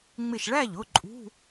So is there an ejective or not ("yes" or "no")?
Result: yes